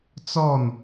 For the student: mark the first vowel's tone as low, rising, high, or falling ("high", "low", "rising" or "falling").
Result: falling